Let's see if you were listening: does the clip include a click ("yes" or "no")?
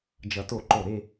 yes